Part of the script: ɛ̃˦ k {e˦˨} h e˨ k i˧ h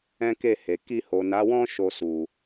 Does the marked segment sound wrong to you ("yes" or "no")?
no